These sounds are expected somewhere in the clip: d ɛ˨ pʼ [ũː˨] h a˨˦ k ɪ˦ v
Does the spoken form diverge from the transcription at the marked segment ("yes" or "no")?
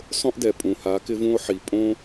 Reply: yes